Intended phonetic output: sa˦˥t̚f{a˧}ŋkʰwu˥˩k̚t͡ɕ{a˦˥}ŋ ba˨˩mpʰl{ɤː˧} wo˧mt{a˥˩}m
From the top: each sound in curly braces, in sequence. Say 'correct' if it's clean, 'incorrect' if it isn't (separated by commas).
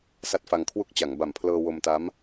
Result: correct, incorrect, correct, incorrect